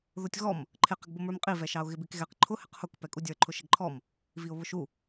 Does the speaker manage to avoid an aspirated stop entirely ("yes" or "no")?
no